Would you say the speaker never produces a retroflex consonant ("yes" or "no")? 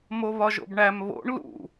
no